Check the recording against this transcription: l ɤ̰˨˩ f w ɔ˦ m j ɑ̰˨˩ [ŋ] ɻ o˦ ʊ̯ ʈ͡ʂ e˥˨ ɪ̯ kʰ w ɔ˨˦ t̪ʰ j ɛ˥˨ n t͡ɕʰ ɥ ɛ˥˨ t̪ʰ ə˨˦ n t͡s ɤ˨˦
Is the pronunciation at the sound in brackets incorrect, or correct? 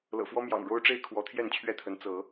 correct